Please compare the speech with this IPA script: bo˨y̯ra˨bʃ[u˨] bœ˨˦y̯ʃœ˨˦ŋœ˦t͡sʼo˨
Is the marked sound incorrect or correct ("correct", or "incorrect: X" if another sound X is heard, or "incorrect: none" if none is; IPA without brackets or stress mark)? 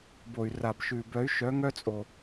incorrect: ʉ˨